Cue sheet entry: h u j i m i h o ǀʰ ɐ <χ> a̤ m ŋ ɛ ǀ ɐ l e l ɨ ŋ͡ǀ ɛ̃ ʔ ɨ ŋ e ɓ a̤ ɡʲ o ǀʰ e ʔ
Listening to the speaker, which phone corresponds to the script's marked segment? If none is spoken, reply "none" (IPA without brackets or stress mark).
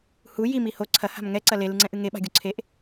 h